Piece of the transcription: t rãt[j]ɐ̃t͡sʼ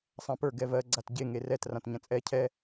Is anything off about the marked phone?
yes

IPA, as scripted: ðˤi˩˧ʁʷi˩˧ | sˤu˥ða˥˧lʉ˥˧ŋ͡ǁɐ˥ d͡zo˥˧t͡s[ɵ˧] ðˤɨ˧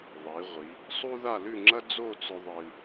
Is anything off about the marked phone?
no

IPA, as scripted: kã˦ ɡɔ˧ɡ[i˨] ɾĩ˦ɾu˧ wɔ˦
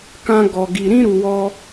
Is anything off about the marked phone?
yes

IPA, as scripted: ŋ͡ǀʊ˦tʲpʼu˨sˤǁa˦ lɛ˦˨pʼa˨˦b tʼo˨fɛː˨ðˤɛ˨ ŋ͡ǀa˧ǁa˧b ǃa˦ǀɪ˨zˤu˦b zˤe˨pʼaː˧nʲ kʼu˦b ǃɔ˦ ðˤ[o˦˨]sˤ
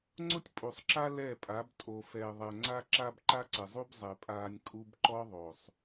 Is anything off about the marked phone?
yes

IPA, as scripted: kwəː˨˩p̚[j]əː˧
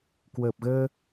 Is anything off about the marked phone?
yes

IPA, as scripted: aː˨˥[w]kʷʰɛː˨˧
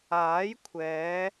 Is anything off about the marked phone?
yes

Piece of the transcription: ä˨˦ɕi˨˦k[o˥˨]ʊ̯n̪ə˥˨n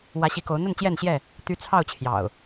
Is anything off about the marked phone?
yes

